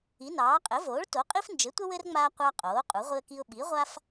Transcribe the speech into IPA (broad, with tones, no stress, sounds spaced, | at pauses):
i˩˥ n ɑː˩˥ qʼ ɘ˩˥ v oː˩˥ ɭ t o˩˥ qʼ i˦ f n d͡ʒ ɘ˩˥ tʷ ə˦ w ɘ˦ r ŋ͡m aː˦ qʷ ɑ˦ qʼ oː˩˥ qʼ u˩˥ ʁʷ i˦ ə̯ k i˦ ʊ̯ ɓ i˩˥ ʁʷ a˦ f